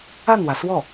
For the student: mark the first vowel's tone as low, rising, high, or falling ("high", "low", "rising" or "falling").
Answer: falling